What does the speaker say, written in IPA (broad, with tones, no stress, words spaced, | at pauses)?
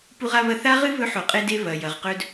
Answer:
pu˧ʁa˧βɐ˧ θa˥ʁɨ˥ βɵ˧˥ħo˩qʼe˧de˧ βɐ˩ jɐ˩ʁ qɵ˧d